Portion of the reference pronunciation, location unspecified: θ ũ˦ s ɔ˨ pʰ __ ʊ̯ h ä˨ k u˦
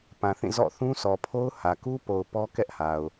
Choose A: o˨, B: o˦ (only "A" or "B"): B